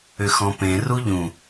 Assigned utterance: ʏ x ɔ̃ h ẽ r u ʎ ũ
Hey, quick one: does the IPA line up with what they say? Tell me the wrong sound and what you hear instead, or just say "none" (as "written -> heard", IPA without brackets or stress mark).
h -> p